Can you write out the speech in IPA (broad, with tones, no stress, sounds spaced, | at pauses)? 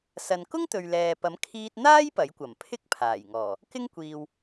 s ɐ˨ n k ʊ˥ ŋ t̪ ɵ˨ ɥ l ɛː˨ p ɐ˨˥ m kʰ iː˧ t̚ n̪ aː˥ j p ɐ˨˥ j kʷ ɐ˨˩ m pʰ ɪ˥ k̚ pʰ aː˨˩ j ŋ ɔː˨˩ | k ɪ˥ ŋ kʷ iː˨ w